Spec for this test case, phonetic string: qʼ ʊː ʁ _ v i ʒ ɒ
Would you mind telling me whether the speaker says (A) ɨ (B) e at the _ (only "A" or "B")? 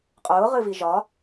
A